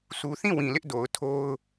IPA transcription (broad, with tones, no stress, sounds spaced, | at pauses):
sʰ u˨ θ ĩ˦˨ w ĩ˨ l ɪ˦ ʔ d o˨ ʊ̯ tʰ o˦ ʊ̯